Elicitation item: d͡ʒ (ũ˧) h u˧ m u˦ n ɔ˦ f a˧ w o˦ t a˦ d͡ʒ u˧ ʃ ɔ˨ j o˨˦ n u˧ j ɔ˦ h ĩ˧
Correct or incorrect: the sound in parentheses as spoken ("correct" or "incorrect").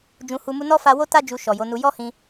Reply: correct